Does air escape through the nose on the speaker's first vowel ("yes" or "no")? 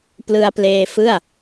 no